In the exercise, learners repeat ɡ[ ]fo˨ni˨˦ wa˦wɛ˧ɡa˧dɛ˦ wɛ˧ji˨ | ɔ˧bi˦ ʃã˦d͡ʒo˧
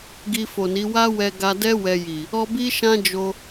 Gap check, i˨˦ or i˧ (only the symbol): i˧